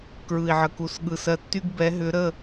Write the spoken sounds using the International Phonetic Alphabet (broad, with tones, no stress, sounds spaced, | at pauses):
k ɹ ɯ˨ i̯ ʕ ə˨ k u˨ s ɠ ɯ˨ s ɜ˧ tː y˦ ɡ b ɛ˨˦ ɦ ʏ˨˦ ɾ ə˦˨